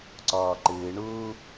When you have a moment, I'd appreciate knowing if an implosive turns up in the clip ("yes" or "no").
no